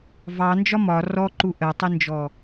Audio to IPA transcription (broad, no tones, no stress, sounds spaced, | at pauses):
v ɑ n d͡ʒ ɒ m ɒ r ɔ ǃ u ʔ ɜ tˤ i n d͡ʒ ɔ